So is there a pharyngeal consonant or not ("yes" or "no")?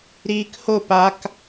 no